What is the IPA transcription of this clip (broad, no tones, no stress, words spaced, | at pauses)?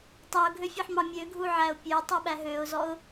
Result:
tˤæʊ̯ɡʱøfʲɑħmɑ mʲøɡʱuʕæʊ̯ pʲøtˤuɓæ ɦøʊ̯zɔʊ̯